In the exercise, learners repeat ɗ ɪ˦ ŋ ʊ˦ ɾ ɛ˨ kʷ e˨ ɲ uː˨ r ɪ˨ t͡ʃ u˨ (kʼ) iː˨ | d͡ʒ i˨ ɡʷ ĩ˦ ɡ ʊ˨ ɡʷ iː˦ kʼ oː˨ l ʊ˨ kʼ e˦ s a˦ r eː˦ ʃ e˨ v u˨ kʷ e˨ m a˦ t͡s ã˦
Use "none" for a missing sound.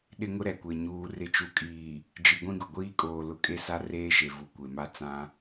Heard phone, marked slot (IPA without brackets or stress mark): kʼ